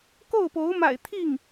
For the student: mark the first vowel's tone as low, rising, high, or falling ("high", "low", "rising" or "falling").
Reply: falling